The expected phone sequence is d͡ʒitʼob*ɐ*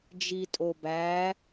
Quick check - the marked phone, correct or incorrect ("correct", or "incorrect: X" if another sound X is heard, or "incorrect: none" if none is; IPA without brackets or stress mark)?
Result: incorrect: æ